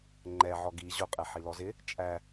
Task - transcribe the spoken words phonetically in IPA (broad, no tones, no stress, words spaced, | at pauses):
ŋ͡ǃɛ ʕɔɡi ʑʊ qʼɛħilɔzɪ | t͡ʃʼæ